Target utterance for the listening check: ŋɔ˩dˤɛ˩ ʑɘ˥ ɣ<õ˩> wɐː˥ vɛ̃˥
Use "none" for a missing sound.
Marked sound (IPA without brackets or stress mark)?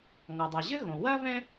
õ˩